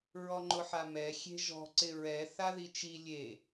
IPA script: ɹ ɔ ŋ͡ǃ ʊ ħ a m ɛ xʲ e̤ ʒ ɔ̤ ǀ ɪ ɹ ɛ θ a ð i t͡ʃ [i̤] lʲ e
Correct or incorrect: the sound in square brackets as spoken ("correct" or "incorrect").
incorrect